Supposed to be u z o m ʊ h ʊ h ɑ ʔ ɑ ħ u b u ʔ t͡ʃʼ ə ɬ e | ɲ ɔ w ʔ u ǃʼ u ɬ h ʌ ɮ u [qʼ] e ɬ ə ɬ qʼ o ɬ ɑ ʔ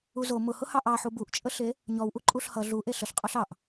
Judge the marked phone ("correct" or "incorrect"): incorrect